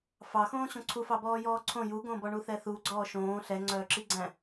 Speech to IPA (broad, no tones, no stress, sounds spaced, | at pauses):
f ɑ x õː ɕ õ ǀʰ u f ɑ b ɔː j ɔː ǀʰ õ j u ɡ õ b ɔ ɳ u θ ɛ θ u ɡ͡ǀ ɔː ʃ õː ɬ ɛ ŋ͡ǀ œː ǁ i ɡ͡ǀ æ̃